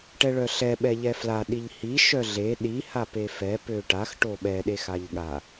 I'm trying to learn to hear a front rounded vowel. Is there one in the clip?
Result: yes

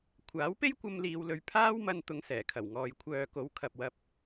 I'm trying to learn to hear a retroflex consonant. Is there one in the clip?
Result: no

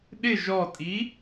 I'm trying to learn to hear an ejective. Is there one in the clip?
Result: yes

